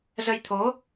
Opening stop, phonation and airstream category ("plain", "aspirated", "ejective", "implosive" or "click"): aspirated